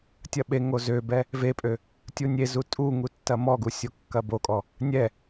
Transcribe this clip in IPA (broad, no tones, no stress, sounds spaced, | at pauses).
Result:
tʲ ɐ ɓ e ŋ o z ø b ɛ | v e pʼ ø | tʲ u nʲ e z u tʼ u ŋ u tː ɐ m ɔ ɡ u sʲ o kː ɐ b o kʼ ɔ | nʲ ɛ